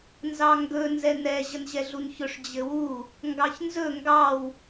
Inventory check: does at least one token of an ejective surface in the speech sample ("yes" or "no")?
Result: no